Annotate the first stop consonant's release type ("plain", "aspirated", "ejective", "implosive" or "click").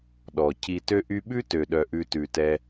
implosive